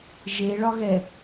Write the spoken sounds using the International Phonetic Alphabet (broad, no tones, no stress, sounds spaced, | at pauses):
ʒ e ɭ ɒ ɣ ɛ